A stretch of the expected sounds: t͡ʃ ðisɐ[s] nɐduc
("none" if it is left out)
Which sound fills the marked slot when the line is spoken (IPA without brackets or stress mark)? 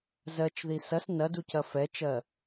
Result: s